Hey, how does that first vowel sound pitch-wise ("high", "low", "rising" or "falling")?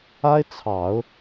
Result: high